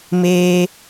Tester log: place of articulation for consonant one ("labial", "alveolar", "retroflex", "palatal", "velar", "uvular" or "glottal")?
labial